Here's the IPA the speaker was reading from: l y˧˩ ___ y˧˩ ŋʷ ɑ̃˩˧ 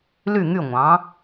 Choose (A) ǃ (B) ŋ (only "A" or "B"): B